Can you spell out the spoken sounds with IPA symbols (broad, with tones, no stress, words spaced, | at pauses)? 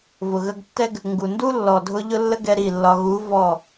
vʊ˨ɣə˧ɡtːɛ˦ɡ | ŋɡu˨ndu˦lːɔ˨dʱʊ˧ ʎʊ˦lːə˦ɡɛ˧ ɾi˦˨lːɒ˧ ɣu˨˦ vɔ˦˨